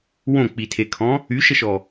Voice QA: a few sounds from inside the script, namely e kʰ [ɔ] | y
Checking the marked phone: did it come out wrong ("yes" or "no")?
yes